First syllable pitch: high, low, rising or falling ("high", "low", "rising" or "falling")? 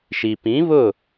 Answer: low